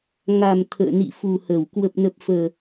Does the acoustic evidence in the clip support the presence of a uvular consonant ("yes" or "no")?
no